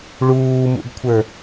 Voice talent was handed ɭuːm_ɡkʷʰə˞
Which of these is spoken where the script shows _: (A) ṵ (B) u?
A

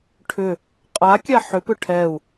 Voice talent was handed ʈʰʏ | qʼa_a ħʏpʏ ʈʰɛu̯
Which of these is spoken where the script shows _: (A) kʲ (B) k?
A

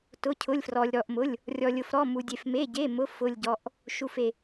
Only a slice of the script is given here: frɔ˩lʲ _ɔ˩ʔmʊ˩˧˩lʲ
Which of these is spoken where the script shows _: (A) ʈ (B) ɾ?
B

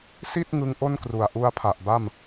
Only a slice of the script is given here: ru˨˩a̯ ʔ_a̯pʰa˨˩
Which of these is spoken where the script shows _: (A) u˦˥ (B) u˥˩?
A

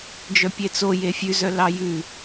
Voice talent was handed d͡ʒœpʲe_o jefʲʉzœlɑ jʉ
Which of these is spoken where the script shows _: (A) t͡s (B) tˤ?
A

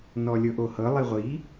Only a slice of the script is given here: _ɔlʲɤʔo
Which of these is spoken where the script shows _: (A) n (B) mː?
A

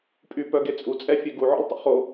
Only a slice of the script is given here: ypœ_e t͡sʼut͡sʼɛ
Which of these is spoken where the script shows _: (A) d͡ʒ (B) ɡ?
B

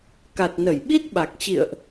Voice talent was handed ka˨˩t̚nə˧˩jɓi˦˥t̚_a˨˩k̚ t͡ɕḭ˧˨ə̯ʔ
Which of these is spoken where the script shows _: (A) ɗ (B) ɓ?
B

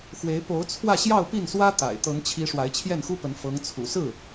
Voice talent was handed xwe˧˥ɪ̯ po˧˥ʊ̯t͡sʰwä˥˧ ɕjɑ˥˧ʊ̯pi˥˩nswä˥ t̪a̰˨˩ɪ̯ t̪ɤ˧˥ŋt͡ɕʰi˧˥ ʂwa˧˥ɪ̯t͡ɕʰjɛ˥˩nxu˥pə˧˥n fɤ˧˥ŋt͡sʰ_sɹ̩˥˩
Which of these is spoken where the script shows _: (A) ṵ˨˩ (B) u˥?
A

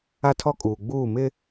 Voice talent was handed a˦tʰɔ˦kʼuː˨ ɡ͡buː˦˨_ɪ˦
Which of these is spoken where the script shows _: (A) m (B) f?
A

